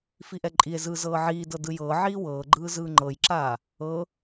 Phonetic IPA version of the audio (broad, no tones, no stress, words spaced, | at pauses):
fiʔɛǃʼie̯zɯː zɤːʕiːdɤ dɯjɤːʕiː wɤːɡ͡ǃɯː zɯːŋ͡ǃɤjǁaː | ɤ